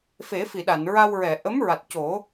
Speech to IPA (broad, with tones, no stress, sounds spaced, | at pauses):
f e˨˩˦ f i˨˩˨ ɗ a˨˩˨ n ɹ a˧ w ɹ ɛ˨˩˨ ʔ ə˧˥ m ɹ a˨˩ t̚ c o˨˩˦